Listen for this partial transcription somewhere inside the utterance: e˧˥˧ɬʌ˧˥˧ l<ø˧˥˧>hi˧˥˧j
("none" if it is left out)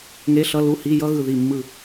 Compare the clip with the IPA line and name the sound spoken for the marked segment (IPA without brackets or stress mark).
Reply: u˧˥˧